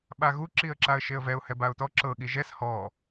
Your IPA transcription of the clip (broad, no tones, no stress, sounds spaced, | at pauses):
ɓ a ɣ u ǁ i ə̯ ǁ a ə̯ ʃ e ə̯ v ɛ ʊ̯ h ɛ b a ʊ̯ t ɔ ǁ ɤ ɠ i ʒ ɛ s h ɔ